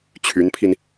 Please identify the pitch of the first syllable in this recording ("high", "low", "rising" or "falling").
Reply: rising